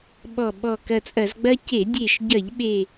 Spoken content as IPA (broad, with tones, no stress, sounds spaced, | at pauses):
ɓ ɔ˧˩ ɓ ɔ˧˩ k ɐ˧˩ t͡sʼ ɐ˧˩˧ z ɡ͡b ɐ˦ c e˧˩˧ dʲ e˧˩ ʃ ɟ ɐ˧˩˧ ʎ ɓ e˧˩